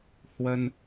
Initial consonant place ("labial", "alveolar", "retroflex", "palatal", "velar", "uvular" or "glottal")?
glottal